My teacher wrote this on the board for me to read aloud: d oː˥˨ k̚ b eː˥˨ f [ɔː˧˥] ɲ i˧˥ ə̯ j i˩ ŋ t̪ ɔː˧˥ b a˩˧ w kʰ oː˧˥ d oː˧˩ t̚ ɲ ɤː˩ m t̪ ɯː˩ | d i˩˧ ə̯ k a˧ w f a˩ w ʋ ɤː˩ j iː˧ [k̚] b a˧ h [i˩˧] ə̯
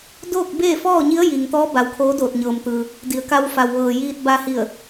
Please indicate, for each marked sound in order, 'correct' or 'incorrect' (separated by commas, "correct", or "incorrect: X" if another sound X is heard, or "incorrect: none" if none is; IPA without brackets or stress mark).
incorrect: ɔː˥˨, incorrect: t̚, incorrect: i˧˩